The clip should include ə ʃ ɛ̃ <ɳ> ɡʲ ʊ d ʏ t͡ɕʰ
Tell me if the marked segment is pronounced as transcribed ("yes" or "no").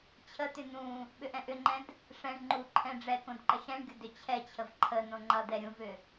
yes